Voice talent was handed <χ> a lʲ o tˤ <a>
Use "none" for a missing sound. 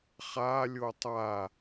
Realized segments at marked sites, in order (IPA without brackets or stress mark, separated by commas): χ, a